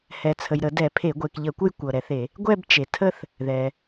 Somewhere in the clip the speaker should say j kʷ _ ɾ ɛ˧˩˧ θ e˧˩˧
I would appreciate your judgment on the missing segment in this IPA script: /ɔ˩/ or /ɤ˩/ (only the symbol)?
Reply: ɤ˩